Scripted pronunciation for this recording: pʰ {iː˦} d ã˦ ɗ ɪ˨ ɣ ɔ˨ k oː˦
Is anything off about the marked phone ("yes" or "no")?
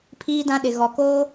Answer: no